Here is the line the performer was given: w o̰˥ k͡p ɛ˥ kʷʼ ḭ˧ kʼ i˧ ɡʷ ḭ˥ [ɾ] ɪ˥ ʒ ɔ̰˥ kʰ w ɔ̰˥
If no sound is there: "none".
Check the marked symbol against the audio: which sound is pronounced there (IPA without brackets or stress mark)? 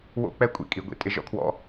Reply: tʼ